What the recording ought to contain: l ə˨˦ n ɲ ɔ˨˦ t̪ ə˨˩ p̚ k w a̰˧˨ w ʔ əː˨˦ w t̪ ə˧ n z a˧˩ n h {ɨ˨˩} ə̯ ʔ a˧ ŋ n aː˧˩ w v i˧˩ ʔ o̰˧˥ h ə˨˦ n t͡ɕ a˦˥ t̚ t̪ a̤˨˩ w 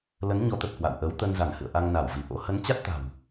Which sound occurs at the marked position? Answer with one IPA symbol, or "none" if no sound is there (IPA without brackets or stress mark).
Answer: ɨ̰˧˨